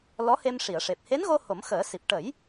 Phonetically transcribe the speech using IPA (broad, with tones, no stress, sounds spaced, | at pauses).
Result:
l ɔ˧˥ h e˧ m ʂ i˨˩˨ ə̯ ʂ e˨˩ p̚ h e˧˥ n ɣ o˧ h o˨˩˦ m x əː˨˩˦ s i˨˩ p̚ ʈ ə˨˩˦ j